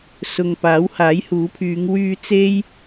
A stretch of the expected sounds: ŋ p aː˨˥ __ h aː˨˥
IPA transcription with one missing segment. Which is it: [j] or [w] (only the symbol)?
w